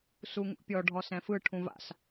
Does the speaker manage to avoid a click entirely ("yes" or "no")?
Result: yes